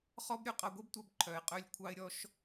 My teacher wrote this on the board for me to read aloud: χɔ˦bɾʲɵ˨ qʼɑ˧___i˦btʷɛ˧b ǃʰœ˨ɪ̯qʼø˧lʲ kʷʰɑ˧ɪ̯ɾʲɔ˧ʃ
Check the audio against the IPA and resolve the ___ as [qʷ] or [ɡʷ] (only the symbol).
ɡʷ